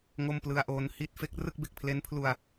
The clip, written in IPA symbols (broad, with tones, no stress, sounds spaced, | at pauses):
ŋ o˥˩ m p l ɯ˧ a̯ ʔ oː˧ n h i˥˩ t̚ f e˦˥ k̚ r ɯ˥˩ k̚ b e˨˩ k̚ pʰ l e˦˥ n pʰ l u˧ a̯